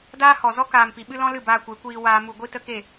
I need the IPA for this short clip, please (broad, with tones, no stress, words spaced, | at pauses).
daː˦hɔ˨zɔ˦ kaː˨mpi˨ɓɨ˧ lɔ̃˦lɨ˦˨baː˧kʷe˨˦ kʷiː˧waː˧ mu˨ɡʷi˧ tə˦ke˦˨